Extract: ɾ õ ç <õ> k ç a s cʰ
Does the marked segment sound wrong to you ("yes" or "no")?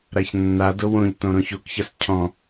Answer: yes